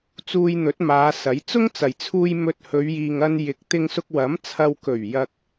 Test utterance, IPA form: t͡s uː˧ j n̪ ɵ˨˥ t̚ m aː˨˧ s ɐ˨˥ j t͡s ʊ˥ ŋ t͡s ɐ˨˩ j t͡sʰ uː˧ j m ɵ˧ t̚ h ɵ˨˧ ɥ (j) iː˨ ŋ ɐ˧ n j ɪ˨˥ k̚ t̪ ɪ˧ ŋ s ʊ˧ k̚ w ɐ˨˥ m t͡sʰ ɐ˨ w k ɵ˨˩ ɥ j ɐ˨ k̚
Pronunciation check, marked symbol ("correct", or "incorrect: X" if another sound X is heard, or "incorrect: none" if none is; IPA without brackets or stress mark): correct